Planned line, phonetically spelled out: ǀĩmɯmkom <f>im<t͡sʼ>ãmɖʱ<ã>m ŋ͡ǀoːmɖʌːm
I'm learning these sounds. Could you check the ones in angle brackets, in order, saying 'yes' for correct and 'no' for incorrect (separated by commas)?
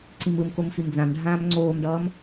yes, no, no